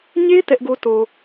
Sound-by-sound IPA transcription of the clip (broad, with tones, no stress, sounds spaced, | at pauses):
ɲ e˦ t ɛ˦ ʔ ɡ o˦ t o˨